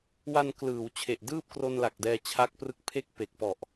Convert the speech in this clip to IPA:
w a˧ n k l ɯː˩˦ w t͡ɕʰ e˨˩ ʔ d ɯː˥˩ p̚ k r o˧ n l a˨˩ k̚ d ɛː˧ t͡ɕʰ a˦˥ k̚ p r ɯ˦˥ k̚ pʰ e˥˩ k̚ p e˨˩ k̚ p ɔ˨˩ ʔ

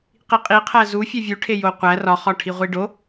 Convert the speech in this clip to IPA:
q i qʼ i qʰ æ z u fʲ e vʲ u ʈʰ e j o qʷ æ r ɒ χ ɒ ʈʰ i ʁʷ i ɖ o

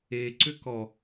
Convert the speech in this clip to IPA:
e ǀ ʏ k ɔ

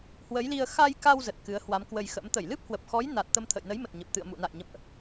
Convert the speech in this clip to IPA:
h w ə˨˦ j l i˧ ə̯ x a˧ j k a˧ w z ə˨˩ t̚ k ɨ˨˦ ə̯ h w a˨˦ m k w ə˧ j x ə̰˧˥ m t̪ ə˧˩ j l ɨ˦˥ p̚ h w ə˨˩ p̚ x ɔ˨˦ j n a˨˩ t̚ t̪ ə˧ m t̪ʰ ə̰˧˨ j n ə˨˦ j m ə˨˩ t̚ ɲ ə˨˩ p̚ t̪ ɨ̰˧˨ ə̯ m ṵ˧˨ n a̰˧˨ j ɲ ə̰˧˨ m ʔ

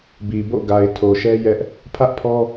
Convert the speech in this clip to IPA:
b i˨ b o̰˦˨ ɡ a˨ ɪ̯ tʰ o˨ ʃ ɛ˦ j ɛ˦ ʔ | pʰ ä˦ ʔ pʰ ɔ˦

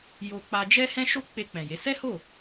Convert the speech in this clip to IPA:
j o˧ k͡p a˧ d͡ʒ ɛ˦ h ɛ̃˦ ʃ o˦ k͡p e˧ k͡p ɛ̃˨ j e˨˦ s ɛ˦ h o˦˨

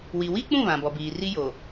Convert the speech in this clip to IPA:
w i˨ w i˦ k͡p ũ˦˨ β ã˨ b ɔ˨ b iː˨ r i˦ j o˨

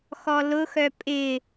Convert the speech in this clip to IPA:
x ɔ l ʊ x œ pʼ ɪ

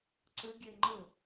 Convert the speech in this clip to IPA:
ǀ ə ɡʲ ɛ ŋ͡ǃ ə

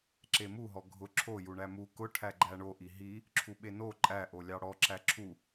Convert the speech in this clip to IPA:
ǁ e m u ɦ ɔ ɡʱ ʊ ǁʰ o j u ɳ æ m u k ʊ ʈʰ æ ɡ͡ǃ æ ɳ o ʔ i ɦ i | ǁʰ u ɓ e n o ǃʼ æ ʔ o lʲ ɑ ɽ ɔ ǁ æ ǁʰ u

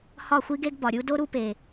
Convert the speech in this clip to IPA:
h ɒ˥˧ xʷ i˥ ɡ e˥ ɡ b ɒ˨ ɾʲ u˥ d o˥ ɾ u˥ p e˨

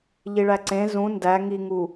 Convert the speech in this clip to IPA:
ʎ i ɭ æ ǀ ẽ z ũ n d æ ŋ i ŋ u

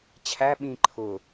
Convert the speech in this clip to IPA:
t͡ɕʰ æ ɓ ĩ ǃʰ ʊ

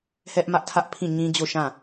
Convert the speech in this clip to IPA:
h ɛ˦ ʔ m ä˦ ʔ tʰ ä˦ ʔ pʰ ĩ˦˨ ɲ ĩ˦ d͡ʑ o˦˨ ʃ ã˦˨

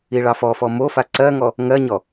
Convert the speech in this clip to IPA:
i ɭ ɑ f ɔ f ɔ m o f a ǀ ɜ ŋ ɔ | ŋ ɜ ɲ ɔ

